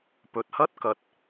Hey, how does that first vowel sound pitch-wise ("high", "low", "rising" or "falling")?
low